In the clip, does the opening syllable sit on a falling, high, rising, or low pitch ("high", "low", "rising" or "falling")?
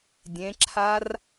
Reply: rising